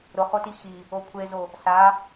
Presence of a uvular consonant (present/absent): present